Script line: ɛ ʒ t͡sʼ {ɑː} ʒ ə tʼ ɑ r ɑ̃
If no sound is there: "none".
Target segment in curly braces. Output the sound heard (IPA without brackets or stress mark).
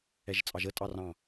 ɑ